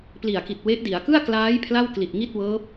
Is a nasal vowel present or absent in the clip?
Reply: absent